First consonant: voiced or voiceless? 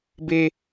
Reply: voiced